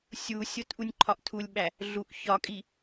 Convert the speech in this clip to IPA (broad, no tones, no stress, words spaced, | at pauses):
sʲusʲot ʔunʲǃʰɒʔtʰulʲɓæ | ɮuʔ çɒkʼi